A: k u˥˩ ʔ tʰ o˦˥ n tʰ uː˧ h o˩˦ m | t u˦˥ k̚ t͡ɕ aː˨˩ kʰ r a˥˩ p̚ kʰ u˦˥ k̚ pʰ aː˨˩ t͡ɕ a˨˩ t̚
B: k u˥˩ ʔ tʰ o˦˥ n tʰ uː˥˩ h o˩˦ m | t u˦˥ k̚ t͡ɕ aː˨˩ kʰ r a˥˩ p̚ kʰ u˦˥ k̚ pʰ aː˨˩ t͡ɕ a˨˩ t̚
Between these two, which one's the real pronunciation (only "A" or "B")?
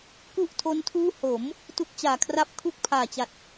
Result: B